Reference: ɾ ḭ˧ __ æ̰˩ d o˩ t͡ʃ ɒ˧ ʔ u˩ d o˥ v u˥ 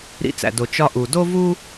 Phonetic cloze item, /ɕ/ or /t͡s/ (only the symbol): t͡s